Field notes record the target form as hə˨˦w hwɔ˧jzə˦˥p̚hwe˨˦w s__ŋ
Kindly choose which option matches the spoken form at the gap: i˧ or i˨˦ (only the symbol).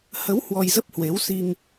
i˧